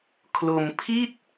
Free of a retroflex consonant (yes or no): yes